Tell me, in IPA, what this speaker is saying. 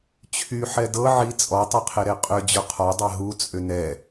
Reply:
t͡ɕʰ y ħ ɛ d ɤ ʕ i t͡sʼ ɔ tˤ i qʰ e ɾ e qʼ ʏ d͡ʑ ʊ qʰ ɔ dˤ ɛ ɦ u t͡sʼ ʏ n ɛ

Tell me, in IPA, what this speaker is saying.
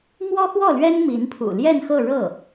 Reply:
m w ɔ˥ x w ɔ˥˩ l ɥ ɛ˥ n m i˧˥ n pʰ ṵ˨˩ l j ɛ˥˧ n x ɤ˥˧ ɻ ɤ˥˩

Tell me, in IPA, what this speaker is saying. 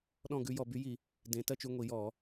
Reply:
ɗ ɔ̃˥˧ ɡ ʉ˨˥ j ɔ˧˩˧ b y˨˥ j i˧˩˧ | d ẽ˨˥ t ɜ˥˧ t͡ʃ y˧ ŋʷ i˧˩˧ j ɔ˧˩˧

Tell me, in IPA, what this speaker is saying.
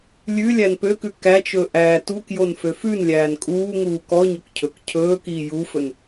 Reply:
lʲ ʉ lʲ æ n p ø k ʉ k æ t͡ʃ ɵ ʔ æː t u k j o n f ø f ʉ n lʲ æː n kʼ uː ŋ uː k ɔ ɲ ɵ k cʰ ɵ k cʰ ɵː k iː j u f ɵ n

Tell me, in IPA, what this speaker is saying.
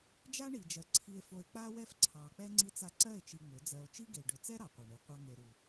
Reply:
d͡ʒ a˦ ɳ i˨ d͡ʒ ɜ˨ ǀʰ i˧ e̯ f o˧ e̯ k͡p a˦ w ɛ˦ f ǀʰ ɑ˨ k͡p ɛ˦ ŋ͡ǀ i˧ t͡s a˧ ǀ ɜ˦˨ e̯ t͡ʃ i˧ ŋ͡m ʏ˨˦ d͡z ɜ˧ o̯ t͡ʃ i˦ ɡ e˨ ɖ ʏ˨ t͡s ɛ˦ ɾ ɑ˨ qʷ ɑ˨ ɳ i˨ qʷ ɑ˦ ŋ e˨ ɾ u˨

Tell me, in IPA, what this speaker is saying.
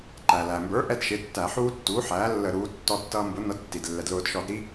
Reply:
ǃ æ˩ l æ˩ m b ə˞˩˥ ʔ ɛ˦ d ʃ ɪ˩˥ tː æ˧˩˧ ħ uː˦ tː uː˩˥ ħ æː˩˥ lː ə˧˩˧ ɾ uː˩˥ tː ɔ˦ tː ʌː˦ m b ʊ˩˥ n ʌ˩˥ d tː i˩ d lː ɛ˩ d l ʊː˧˩˧ d ʃ ɔ˧˩˧ d ɾ i˦

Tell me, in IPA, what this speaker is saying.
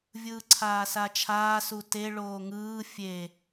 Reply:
vʲ ɯː ǀʰ aː s a t͡ʃʰ aː s u t e ɭ oː ŋ ɯː fʲ e

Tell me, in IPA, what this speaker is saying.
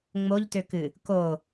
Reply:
ŋ͡m o ʎ t ø k ɨ | k o

